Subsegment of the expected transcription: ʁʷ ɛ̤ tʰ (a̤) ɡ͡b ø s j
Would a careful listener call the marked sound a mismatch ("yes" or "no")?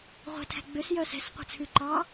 yes